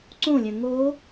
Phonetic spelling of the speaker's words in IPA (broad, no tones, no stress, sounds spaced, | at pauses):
ǀ õ lʲ œ̃ ŋ o